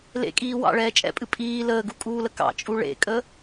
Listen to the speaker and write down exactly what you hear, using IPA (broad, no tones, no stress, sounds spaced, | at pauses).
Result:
l ḛ kʼ iː w ɑ̰ ɭ ɛː t͡ʃʼ ɛ̰ pʼ ɨ pʼ iː l əː ɡ u kʼ uː l ə k ɑ̰ t͡ʃʼ u ɭ ḛ kʼ ə